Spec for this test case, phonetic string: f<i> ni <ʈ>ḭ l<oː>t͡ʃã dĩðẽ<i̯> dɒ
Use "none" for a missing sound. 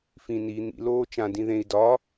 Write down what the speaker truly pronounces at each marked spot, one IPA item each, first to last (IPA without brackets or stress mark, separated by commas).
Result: ĩ, n̪, oː, i̯